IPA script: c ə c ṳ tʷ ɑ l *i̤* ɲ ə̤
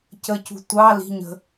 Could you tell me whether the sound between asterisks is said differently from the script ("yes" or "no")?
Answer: no